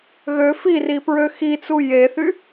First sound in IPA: ɣ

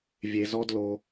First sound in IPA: vʲ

